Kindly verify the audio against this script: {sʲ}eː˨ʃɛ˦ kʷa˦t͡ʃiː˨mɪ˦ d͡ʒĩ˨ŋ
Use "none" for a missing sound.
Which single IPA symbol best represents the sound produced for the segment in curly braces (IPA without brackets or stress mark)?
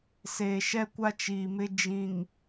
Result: s